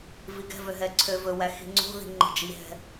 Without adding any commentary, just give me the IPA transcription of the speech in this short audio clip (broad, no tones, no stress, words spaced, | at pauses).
viɡɛ̤vø ɦɛǀʰøvɵwæ xi̤ŋ͡ǀo̤ði̤ ŋ͡ǃi̤d͡ʒiɦɛ̤